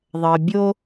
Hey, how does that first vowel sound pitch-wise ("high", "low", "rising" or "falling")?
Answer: low